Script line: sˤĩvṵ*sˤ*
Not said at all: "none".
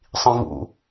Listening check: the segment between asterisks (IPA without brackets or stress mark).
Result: none